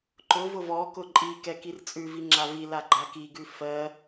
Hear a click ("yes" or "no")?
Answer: yes